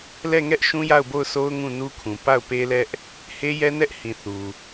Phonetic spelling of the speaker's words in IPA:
lɛ˦˨ŋɛ˦ʔ ʃũ˦ja˦˨ʊ̯bo˦˨ʊ̯sʰo˦ʊ̯ ŋũ˦˨nu˦kʰũ˨ pa˦˨ʊ̯pe˦lɛ˦ʔ | he˦jɛ˦nɛ˦ʔhĩ˨ θu˨

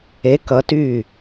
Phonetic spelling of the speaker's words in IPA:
e˨˦kʌ˨˦ ty˦˨

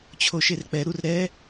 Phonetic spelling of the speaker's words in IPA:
t͡ɕʰoʃerk͡pɛ ɾurɾɛ

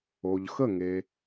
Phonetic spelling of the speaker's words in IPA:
o˩ʎxə˧˩ŋe˩

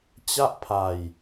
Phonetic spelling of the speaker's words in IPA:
t͡ɕa˥˩ʔpʰa˧j

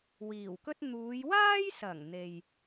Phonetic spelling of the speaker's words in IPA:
wiː˨˩wkɵ˥t̚ n̪uː˨˧jwaː˥jsɐ˨˩ŋ n̪e˨j

